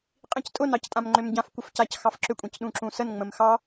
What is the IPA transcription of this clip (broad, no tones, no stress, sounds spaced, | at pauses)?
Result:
qʼ ĩ c tʼ ʊ n ɑ c tʼ ã m ŋ͡ǃ ʏ m ɟ ã f kʷ ə f c a c x ɑ f ǁ ʏ kʷʼ ĩ c ɗ ũ ǁ ũ s ə n ŋ͡m ə̃ m x ɑ